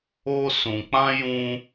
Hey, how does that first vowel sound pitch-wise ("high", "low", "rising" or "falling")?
high